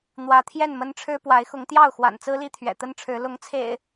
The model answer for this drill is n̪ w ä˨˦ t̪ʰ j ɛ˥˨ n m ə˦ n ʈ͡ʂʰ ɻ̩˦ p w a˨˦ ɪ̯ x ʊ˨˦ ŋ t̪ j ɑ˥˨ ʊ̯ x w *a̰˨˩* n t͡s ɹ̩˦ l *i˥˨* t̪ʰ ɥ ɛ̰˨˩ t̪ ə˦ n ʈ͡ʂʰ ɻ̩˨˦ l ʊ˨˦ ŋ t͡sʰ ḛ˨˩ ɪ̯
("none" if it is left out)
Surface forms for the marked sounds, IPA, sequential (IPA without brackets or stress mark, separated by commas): a̰˨˩, i˥˨